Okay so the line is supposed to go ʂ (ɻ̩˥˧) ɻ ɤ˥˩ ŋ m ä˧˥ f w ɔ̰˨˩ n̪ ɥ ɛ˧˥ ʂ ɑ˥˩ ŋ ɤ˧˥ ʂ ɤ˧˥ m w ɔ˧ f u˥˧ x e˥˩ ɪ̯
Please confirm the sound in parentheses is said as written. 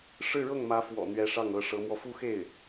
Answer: yes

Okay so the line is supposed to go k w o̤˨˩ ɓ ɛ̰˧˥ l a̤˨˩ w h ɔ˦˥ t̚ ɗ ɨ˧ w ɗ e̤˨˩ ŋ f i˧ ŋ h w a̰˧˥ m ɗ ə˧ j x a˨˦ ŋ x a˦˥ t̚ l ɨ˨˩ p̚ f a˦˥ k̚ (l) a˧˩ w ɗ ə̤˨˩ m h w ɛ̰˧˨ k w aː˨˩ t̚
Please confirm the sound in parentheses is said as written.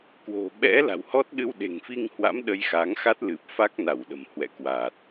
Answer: no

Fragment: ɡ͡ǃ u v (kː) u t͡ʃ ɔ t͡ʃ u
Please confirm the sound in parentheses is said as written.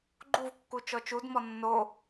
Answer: yes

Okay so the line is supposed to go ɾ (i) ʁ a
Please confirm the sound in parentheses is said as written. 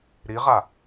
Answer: yes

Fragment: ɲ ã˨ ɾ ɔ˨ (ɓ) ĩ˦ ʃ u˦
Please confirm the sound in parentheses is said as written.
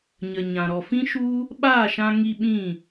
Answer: no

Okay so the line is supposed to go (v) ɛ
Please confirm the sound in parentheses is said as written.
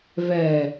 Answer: yes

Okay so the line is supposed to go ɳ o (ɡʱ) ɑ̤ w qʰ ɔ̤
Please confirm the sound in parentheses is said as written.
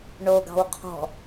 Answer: no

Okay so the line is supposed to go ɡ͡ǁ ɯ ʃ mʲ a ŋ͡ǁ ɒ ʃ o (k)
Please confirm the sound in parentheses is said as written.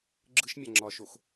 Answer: no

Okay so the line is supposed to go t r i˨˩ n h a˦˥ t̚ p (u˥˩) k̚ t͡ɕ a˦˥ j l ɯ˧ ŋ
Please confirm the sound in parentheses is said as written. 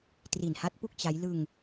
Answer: yes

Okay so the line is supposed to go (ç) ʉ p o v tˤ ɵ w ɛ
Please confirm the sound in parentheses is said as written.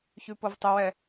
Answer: yes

